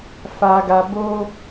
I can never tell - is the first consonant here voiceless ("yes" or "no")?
yes